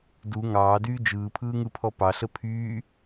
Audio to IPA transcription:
d u ŋ ɑː d yː d͡ʒ ɯː pʰ ɯː ŋ ɯ pʰ ɔ p ɑ ɬ ə pʰ yː

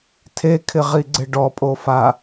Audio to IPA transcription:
tʰ e kʰ ɪ ʁ i ɡ͡ǀ ɪ ɖ ɔ pʼ o f a

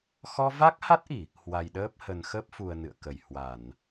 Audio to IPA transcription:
x ɔ˧ v a˦˥ k̚ h a˦˥ t̚ ʔ i˧˩˨ | h w a˨˩ j ɗ əː˦˥ p̚ h ə˨˩ n x ə˦˥ p̚ f u˨˩ ə̯ n ɨ̰˧˨ ə̯ k ə˧˩ j h w a˧˩˨ n

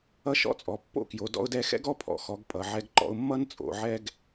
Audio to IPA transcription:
ʌ˦ ʃ ɔ̰˦ t͡sʼ ɔ˩˧ pː o̰˦ k j o˩˧ d ɔ̰˦ ʊ̯ d ɛ˦ x ɛ̰˦ ɡ ɔ˦ pʰ ɔ̰˩˧ x ɔ˩˧ ɡ pʼ ʌ˩˧ ʕ ɛ˦ ɡ ǃ ɔ̰˦ ʊ̯ mː ʌ˦ n t͡sʼ o̰˩˧ ʕ ɛ˦ ɡ

